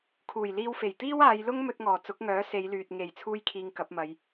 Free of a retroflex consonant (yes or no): yes